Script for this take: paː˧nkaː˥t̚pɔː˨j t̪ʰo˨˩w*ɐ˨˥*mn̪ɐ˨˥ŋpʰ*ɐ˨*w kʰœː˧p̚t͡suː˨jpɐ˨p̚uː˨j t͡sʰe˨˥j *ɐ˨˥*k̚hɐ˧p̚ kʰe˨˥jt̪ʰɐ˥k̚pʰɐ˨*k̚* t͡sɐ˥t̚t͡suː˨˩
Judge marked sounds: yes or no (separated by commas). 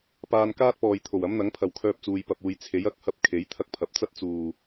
yes, yes, yes, no